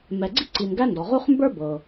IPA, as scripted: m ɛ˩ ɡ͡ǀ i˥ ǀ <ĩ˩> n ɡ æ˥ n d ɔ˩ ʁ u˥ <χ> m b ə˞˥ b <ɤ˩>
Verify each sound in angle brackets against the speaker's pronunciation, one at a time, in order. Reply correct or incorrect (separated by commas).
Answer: incorrect, correct, correct